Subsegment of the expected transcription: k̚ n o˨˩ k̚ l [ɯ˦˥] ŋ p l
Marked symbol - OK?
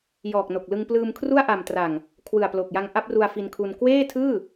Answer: no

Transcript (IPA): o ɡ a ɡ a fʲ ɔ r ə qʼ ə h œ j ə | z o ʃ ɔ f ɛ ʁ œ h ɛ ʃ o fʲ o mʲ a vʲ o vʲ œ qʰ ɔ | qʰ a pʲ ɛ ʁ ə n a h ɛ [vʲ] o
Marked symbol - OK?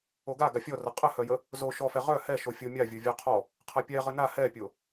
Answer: no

